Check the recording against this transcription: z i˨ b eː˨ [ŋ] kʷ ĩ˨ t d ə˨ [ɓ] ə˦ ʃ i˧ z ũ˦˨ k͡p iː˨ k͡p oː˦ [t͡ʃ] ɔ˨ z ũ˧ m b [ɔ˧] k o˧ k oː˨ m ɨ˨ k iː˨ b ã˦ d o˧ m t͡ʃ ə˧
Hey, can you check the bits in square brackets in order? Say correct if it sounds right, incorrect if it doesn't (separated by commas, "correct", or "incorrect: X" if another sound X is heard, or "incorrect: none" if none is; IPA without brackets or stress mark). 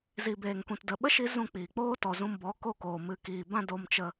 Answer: correct, correct, incorrect: t, incorrect: ɔ˨˦